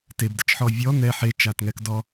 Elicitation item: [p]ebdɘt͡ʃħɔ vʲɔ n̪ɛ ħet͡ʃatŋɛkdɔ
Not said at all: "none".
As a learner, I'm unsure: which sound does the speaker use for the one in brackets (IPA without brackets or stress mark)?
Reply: t